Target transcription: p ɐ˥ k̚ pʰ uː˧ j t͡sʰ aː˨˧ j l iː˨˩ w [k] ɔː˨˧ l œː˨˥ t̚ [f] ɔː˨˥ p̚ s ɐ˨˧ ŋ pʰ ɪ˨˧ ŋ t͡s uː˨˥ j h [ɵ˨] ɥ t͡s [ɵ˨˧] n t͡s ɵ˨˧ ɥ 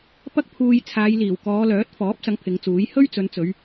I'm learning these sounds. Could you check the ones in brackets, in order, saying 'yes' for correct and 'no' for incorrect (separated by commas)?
yes, yes, no, yes